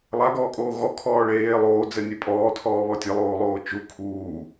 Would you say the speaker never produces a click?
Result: yes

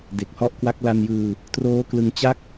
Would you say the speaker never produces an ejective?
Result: yes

